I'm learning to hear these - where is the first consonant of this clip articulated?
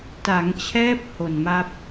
tongue tip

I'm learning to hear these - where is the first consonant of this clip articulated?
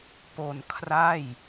lips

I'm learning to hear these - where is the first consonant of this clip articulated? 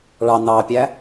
retroflex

